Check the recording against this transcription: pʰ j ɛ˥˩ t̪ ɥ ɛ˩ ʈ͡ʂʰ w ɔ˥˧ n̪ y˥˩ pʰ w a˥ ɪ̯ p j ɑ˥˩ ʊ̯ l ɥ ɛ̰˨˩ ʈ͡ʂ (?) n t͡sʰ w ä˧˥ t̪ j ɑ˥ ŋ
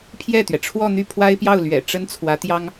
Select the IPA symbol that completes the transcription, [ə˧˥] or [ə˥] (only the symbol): ə˥